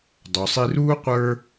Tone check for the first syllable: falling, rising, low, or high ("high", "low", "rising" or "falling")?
low